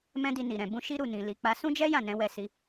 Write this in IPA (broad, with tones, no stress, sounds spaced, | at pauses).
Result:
m ɛ̃˦ d i˧ n i˨ ɾ ɛ̃˨ b ũ˧ ʃ i˦ ɾ u˦˨ n ĩ˨ l i˧ k͡p a˦ s ũ˦ d͡ʒ ɛ˦ j ã˦˨ n ɛ̃˧ w ɛ˧ s i˧